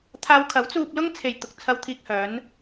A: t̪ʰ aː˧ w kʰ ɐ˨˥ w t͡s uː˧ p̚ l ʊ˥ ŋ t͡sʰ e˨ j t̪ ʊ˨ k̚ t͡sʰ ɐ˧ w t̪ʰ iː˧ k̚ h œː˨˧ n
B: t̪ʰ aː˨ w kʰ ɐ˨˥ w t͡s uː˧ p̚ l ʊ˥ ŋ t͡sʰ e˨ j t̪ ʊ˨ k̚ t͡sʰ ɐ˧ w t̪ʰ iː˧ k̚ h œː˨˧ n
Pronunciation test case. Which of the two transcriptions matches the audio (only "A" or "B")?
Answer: A